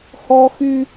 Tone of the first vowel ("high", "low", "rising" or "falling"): high